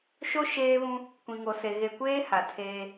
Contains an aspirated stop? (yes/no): yes